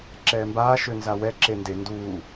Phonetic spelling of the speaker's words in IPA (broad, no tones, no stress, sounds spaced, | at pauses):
ǁ ɛː m b aː ʃ ø n z a w ɛ ǁ e n d e n d uː